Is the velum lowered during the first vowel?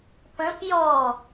yes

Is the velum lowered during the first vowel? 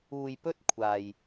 no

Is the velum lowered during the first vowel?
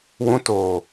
yes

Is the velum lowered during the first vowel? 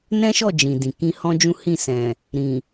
yes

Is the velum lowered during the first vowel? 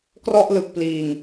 no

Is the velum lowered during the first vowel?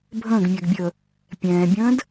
yes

